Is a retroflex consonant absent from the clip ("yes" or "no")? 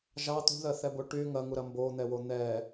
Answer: no